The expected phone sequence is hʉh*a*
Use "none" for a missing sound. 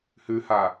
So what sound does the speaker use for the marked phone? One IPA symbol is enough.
a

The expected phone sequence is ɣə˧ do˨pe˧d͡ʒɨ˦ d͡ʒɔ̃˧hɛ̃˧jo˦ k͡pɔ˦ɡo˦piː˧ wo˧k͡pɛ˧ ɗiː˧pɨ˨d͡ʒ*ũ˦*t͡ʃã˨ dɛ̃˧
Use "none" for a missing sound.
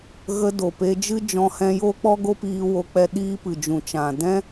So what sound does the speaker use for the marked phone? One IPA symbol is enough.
ũ˨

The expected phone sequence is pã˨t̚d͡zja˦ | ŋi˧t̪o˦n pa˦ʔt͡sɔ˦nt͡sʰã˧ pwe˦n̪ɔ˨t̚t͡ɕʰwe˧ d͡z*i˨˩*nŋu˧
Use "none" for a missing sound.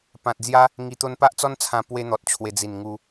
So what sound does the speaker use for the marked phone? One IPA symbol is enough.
i˨˩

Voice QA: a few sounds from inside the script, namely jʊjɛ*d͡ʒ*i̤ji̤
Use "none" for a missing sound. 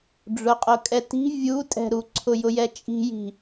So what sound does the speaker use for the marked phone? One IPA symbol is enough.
t͡ʃʼ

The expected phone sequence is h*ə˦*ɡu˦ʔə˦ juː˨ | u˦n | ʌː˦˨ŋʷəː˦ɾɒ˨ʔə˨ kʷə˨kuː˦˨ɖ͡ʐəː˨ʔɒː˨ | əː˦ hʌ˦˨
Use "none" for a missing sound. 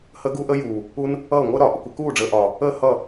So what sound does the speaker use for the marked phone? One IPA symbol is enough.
ə˦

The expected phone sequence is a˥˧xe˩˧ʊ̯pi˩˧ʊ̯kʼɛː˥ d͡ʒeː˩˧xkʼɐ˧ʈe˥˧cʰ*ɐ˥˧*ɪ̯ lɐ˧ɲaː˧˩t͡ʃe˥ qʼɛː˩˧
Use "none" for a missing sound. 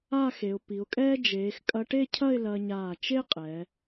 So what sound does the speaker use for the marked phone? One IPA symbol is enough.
ɐ˥˧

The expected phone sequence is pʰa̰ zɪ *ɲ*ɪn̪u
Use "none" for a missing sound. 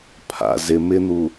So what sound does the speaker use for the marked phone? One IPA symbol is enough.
m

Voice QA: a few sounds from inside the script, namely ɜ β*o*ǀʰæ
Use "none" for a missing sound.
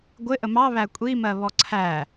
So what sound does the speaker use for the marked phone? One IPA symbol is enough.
ɔ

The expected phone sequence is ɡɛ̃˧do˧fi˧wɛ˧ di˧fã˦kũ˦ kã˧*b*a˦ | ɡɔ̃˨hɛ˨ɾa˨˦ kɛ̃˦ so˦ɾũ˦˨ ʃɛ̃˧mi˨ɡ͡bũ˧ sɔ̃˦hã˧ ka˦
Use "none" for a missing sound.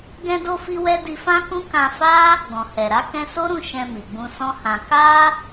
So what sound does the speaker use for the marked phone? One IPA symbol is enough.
f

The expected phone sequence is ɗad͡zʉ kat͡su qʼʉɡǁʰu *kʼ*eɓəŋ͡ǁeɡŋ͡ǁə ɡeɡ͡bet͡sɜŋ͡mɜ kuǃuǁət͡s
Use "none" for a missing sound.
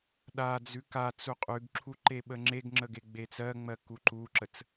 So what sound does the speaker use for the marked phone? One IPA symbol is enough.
ǃ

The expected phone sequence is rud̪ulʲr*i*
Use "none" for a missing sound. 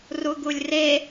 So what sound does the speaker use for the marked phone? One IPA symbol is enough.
e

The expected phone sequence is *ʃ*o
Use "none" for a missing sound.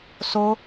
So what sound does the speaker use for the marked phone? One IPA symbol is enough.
s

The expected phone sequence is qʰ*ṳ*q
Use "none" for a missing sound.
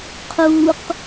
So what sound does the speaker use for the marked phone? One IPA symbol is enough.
u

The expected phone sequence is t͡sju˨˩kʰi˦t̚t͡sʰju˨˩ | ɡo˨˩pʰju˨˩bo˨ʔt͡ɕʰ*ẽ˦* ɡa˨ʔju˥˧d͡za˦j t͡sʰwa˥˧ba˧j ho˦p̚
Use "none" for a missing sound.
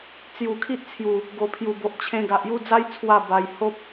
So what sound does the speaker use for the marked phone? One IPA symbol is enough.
ẽ˧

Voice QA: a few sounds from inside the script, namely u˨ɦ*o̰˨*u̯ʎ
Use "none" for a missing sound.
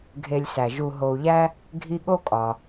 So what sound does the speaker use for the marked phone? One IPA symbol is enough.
o˨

